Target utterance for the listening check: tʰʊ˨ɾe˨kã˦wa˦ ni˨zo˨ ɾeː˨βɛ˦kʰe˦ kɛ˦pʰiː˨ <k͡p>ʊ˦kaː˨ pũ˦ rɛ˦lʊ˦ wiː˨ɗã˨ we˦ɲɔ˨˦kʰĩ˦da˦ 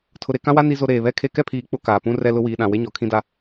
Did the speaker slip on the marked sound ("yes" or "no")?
no